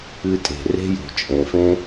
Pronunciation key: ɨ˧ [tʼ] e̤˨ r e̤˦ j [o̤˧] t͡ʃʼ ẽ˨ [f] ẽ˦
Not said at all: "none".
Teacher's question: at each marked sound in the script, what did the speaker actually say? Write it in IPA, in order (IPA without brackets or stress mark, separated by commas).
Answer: tʼ, o̤˨, f